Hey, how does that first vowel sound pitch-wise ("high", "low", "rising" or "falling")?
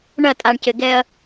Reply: falling